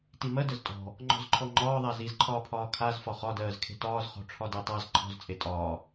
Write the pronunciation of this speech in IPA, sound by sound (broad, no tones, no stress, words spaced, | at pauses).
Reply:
timɜdəz tʼɔ̤ | ŋ͡ǃɔ̤zǃʰɔŋ͡ǃɒː ðˤazizǃʰɒːpʰɒː kʰaz fɒχɒdɜːz kʰe̤tɒːzχɔ̤ ʈ͡ʂʰɒdɜtˤaz ǃʰɔ̤zt͡sʼe tʼɒː